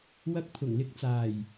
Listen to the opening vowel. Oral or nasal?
oral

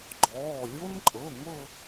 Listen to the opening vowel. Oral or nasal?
oral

